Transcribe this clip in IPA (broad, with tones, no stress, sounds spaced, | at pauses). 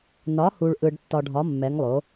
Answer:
n ɒ˩˥ h u˨ ɭ ʔ ɯ˨ ɖ tː ɒ˨ ɖʱ ɒ˩˥ mː ɛ˩˥ ŋ lˠ o˩˥